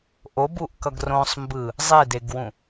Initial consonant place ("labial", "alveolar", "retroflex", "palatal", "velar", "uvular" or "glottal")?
glottal